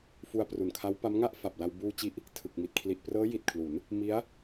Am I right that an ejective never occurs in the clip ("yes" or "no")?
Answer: yes